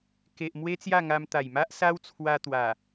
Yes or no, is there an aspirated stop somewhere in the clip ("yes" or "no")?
yes